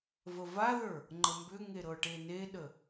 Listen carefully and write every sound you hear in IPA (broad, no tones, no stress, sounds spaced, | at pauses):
v ə v a ð ə˞ | ŋ͡ǃ ə m b ʏ ŋ e ɾ ɤ ʈ e n e ɗ ə